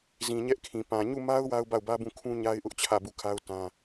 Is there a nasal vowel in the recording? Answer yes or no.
yes